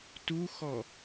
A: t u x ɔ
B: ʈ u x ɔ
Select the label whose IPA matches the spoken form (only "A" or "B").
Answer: A